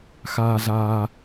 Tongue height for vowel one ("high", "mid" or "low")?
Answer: low